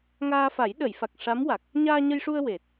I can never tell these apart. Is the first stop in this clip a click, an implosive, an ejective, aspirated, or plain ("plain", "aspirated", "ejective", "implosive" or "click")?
implosive